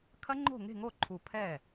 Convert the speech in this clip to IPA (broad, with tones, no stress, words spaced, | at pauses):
kʰɐ˦˥ŋ͡ǃo̤˥˩ŋe̤˥˩ ŋo˥˩ ǃʰu˧˩ pʰɛ˥˩